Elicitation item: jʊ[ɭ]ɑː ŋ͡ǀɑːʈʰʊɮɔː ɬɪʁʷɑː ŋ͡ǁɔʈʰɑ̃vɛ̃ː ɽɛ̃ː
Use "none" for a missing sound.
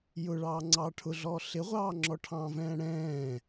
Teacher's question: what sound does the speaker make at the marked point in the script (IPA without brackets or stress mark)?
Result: ɭ